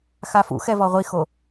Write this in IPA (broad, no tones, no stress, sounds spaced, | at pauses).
x a f ṵ x ɛ v ɔ ʁʷ i x o